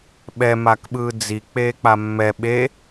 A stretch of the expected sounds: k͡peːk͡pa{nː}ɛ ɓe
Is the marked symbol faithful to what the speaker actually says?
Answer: no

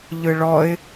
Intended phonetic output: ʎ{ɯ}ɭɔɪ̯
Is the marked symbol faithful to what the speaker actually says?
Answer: yes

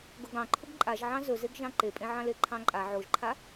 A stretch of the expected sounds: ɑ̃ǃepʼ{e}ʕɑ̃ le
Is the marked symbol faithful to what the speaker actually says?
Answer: no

